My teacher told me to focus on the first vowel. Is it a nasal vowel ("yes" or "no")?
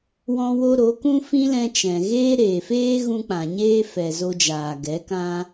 yes